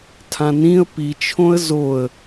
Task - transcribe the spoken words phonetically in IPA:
tʰãnĩə̯ pit͡ʃʰõə̯ zoə̯

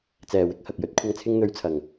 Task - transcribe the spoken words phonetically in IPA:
t͡sɛː˨wɪ˨˥k̚ hɐ˨k̚jɵ˨˥t̚kʷʰɐ˧ŋ t͡sʰɪ˧ŋn̪ɵ˨˧ɥt͡sʰɐ˨˩ŋ

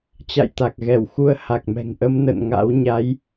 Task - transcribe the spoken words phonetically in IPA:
t͡ɕa̰˧˨jt̪a˨˩k̚ɣɛ˧˩w xu˧ə̯ ha˨˩k̚mɛ̤˨˩ŋʔə˧m nə̰˧˨nŋa̰˧˥w ɲa˨˦j

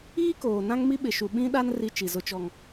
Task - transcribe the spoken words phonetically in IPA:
iː˦koː˨nã˦ŋ mi˦ɓɪ˨ʃu˨ ɓĩ˦ɗa˦n ri˦t͡ʃi˨zʊ˦t͡ʃɔ˦ŋ

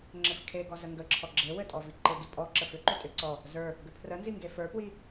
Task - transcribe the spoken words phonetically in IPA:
ŋ͡ǁɘfkʰeɡɔ zəŋɡəǁʰɔ ɡ͡ǁewɘ tʼɔviǃɘɡi pʼɔ ǁəfʏǃʏ tʼʏ ǀɔ | zə˞ | ɡʏpʰrənzi ŋɡefə˞pwi

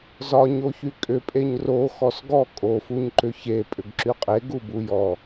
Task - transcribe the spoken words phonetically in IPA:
zɒɲoçy kʼʏpʼeɲ ro xɔsɡɔ kʼofuɲǃʏ çe pʼʏɡǁyqʼe ɡubujɔ

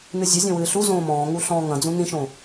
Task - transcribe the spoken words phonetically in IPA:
nɨzʲɐzʲõ wɨːɬuzõː mɔ̃ːŋu ɬɔ̃ːŋɐ̃d͡zũ nĩʃõ

